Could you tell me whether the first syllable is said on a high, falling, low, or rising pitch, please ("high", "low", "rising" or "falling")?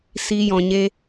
high